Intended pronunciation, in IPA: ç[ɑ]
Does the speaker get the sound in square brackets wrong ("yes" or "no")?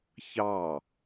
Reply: no